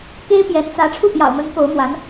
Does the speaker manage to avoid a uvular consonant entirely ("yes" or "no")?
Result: yes